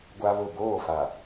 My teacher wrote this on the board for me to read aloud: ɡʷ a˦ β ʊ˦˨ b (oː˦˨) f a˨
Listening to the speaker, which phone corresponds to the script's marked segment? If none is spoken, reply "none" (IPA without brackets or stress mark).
oː˦˨